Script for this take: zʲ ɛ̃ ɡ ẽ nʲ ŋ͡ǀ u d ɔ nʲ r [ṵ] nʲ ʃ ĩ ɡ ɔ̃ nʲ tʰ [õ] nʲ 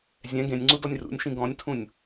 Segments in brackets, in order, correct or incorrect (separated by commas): correct, incorrect